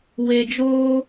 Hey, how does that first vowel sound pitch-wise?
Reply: low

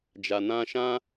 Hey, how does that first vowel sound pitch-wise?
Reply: low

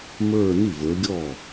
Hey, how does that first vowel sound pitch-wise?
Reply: falling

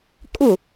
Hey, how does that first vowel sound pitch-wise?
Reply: falling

